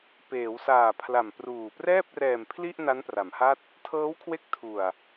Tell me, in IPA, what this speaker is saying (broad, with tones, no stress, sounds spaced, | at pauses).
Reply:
p eː˩˦ w s aː˨˩ pʰ l a˨˩ m p r uː˨˩ p r ɛː˥˩ p̚ r ɛː˨˩ m pʰ l i˥˩ ʔ n a˦˥ n p r a˩˦ m h a˥˩ t̚ | tʰ ɤː˦˥ w kʰ w e˦˥ k̚ tʰ u˨˩ a̯